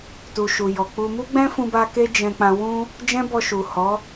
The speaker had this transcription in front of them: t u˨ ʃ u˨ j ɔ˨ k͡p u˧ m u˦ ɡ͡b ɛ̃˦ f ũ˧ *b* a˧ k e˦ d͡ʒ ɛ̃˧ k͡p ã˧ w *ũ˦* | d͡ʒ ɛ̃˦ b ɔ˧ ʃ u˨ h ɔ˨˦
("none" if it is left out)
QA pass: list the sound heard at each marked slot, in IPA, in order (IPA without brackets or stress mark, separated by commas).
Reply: b, ũ˦